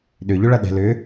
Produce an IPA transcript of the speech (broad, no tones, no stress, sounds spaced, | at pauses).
ɗ ʏ ʎ ʏ ɭ ɐ ɗ ɛ̤ l ʏ